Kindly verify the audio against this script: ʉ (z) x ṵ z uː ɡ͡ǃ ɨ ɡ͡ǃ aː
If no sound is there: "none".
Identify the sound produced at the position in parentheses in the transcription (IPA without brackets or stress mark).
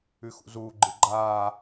none